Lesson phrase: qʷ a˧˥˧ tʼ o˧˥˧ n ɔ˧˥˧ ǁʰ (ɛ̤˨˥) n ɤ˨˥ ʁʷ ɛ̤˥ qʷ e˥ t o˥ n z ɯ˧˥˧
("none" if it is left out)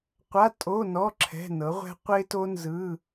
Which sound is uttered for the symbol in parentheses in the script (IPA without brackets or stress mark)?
ɛ̤˧˥˧